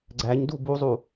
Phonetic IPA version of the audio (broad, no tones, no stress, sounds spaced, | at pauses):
ɡ͡ǀ æ ɲ d u b u zˤ u